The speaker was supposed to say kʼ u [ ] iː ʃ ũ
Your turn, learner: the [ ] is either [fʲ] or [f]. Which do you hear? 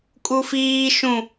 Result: f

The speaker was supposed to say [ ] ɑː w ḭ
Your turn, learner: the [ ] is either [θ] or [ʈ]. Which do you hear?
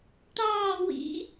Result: ʈ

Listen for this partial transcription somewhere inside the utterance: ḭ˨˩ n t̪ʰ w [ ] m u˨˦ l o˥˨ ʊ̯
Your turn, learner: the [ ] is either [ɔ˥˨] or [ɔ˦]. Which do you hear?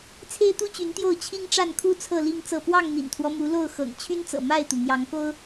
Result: ɔ˦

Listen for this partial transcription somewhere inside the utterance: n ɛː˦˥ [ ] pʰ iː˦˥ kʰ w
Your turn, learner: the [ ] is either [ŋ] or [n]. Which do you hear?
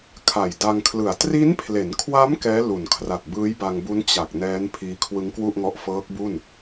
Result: n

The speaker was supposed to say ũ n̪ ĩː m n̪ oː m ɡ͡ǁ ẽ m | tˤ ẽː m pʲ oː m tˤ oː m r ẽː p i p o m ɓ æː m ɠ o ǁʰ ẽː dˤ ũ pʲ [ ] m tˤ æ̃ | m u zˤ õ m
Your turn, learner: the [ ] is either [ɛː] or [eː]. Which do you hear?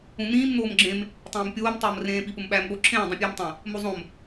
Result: eː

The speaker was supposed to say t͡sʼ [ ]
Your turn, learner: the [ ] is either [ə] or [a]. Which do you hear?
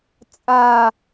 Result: a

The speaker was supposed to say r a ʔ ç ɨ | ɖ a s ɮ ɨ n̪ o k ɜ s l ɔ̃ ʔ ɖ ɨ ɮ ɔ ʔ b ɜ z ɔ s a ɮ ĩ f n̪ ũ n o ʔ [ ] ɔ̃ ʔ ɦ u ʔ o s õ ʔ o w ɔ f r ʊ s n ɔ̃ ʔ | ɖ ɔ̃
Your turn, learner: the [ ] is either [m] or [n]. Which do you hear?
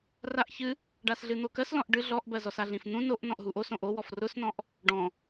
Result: n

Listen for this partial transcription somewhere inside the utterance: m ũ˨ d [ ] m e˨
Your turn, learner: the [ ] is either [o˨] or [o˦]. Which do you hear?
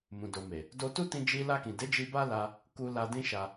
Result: o˨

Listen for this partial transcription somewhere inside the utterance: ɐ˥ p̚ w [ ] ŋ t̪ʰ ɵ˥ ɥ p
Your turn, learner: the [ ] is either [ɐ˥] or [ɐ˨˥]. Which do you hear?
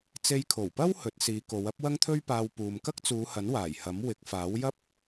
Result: ɐ˥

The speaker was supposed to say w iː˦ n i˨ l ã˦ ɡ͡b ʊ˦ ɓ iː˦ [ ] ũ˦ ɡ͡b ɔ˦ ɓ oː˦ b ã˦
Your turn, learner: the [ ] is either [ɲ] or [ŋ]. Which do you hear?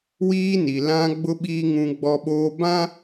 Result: ŋ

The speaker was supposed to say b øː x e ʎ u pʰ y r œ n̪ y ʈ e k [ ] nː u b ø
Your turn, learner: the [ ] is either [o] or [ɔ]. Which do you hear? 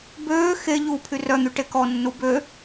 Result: ɔ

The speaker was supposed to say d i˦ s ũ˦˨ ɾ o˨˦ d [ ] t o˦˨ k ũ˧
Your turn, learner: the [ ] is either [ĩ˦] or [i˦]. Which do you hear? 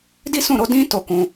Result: ĩ˦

